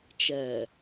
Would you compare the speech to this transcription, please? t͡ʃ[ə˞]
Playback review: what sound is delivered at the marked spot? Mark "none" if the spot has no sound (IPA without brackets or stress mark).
ɐ